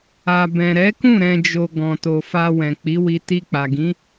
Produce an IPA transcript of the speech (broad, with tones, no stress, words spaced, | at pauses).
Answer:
a˨ bɛ̃˨ɾɛ˨˦kũ˦˨ ɾɛ̃˧d͡ʒo˧ ɡɔ̃˨to˨ fa˧wɛ̃˨ k͡pi˨˦wi˧ ti˧ k͡pa˨ɡĩ˨˦